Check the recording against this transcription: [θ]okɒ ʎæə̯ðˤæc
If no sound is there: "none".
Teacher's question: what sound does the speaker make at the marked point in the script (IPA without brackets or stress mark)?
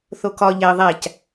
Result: θ